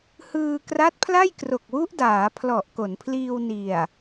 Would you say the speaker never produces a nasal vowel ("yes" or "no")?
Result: yes